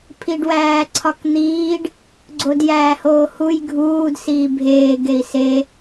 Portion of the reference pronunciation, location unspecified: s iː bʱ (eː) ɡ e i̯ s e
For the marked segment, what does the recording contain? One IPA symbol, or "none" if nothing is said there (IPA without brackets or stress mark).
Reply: eː